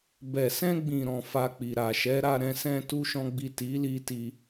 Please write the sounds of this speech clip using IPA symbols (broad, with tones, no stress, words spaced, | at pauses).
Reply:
bɛ˨sɛ̃˧ɡ͡bĩ˨ɾɔ̃˨ fa˧k͡pi˨ɾa˨ ʃɛ˨˦ɾa˧ ɾɛ̃˧sɛ̃˧tu˧ ʃɔ̃˦ɡ͡bi˦˨ ti˨˦li˧ti˧